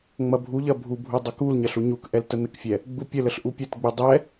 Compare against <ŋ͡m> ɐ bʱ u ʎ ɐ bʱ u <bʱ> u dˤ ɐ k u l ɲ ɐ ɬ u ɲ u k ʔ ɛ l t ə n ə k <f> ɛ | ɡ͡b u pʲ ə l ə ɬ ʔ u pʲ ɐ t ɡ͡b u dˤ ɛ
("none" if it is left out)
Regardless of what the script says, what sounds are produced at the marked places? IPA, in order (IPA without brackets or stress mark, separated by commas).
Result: ŋ͡m, bʱ, fʲ